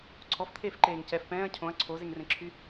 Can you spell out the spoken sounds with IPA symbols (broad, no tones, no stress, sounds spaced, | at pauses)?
ǀʰ ɔ f t̪ʰ eː f ǃ eː ŋ c ɛ f p ɛ̃ː ɐ̯ cʰ õ ɐ̯ ǀʰ o z e ŋ r ẽ ǁʰ y